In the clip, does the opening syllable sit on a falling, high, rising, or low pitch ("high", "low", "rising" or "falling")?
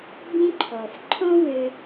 high